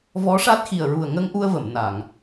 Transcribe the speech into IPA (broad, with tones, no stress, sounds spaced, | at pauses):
v ɔ˧˥ ʂ a˦˥ t̚ x i˨˩ ə̯ ɹ u˨˩ ə̯ ŋ ə˧ ŋ ʔ u˧ ə̯ v ə˨˩˨ m n a˨˩˨ ŋ